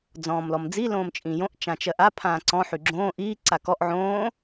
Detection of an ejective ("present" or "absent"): present